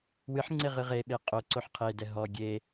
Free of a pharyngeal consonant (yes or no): no